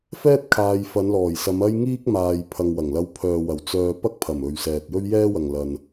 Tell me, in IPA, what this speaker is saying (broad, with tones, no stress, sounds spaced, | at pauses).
f ɛː˥ t̚ kʰ aː˨ j f ɐ˨˧ n l ɔː˨˩ j s ɐ˨˧ m ɐ˥ j ŋ iː˥ k̚ m aː˨ j pʰ ɐ˨ ŋ w ɐ˨˩ ŋ l ɐ˧ w pʰ œː˨ w ɐ˨˩ w t͡s œː˧ p ɐ˥ k̚ pʰ ɐ˨˩ m ɵ˨ ɥ s ɛː˨ t̚ j ɵ˥ ɥ j ɛː˥ w ɐ˨ ŋ l ɐ˨ n